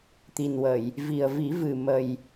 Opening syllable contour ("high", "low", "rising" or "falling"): low